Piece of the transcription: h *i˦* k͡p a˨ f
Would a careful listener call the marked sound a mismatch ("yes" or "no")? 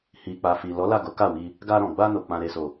yes